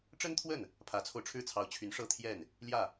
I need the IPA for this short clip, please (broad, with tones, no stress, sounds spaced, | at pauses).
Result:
ʈ͡ʂ ə˥ n t̪ʰ w ə˥˩ n | pʰ ä˧˥ t͡sʰ o˧ ʊ̯ ʈ͡ʂʰ ɻ̩˥ t͡sʰ ɑ˧˥ ʊ̯ t͡ɕʰ y˧˥ n ʂ ɤ˥˧ t̪ʰ j ɛ˥˩ n | l j ä˥˩